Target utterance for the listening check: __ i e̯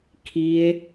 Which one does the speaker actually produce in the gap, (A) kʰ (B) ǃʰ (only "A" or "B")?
A